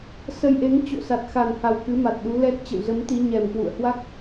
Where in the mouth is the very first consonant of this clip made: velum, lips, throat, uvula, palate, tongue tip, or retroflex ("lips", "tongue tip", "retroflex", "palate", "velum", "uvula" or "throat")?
tongue tip